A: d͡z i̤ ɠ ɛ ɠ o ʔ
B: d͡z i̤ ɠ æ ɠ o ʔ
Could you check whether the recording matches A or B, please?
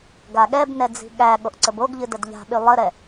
B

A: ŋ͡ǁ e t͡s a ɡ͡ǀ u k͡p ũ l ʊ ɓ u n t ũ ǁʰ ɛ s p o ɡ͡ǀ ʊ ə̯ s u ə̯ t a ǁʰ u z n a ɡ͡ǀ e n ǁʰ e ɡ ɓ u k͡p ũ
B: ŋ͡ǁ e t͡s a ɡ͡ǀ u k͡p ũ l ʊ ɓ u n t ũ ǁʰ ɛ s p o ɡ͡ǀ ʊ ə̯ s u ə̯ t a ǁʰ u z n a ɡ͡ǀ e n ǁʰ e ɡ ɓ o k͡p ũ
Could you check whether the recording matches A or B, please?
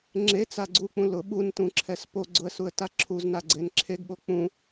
B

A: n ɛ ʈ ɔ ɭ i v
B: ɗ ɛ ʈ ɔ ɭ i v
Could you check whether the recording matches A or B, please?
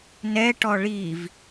A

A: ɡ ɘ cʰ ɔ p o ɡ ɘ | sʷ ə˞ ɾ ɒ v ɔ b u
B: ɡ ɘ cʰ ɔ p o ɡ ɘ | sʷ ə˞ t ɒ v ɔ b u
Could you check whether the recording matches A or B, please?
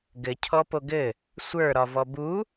A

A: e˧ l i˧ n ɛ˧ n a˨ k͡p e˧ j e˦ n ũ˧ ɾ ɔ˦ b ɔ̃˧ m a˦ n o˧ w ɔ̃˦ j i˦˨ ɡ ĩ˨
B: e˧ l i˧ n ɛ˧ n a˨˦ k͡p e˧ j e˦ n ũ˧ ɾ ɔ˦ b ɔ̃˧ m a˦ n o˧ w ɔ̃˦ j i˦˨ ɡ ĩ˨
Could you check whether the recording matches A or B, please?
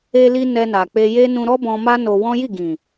A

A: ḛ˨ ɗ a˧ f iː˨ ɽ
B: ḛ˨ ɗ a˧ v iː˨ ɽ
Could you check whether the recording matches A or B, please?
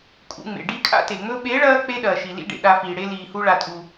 A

